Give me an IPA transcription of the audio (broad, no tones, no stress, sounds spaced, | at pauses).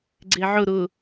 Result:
ɡ͡ǀ e ʕ ʊ ɾ ʊ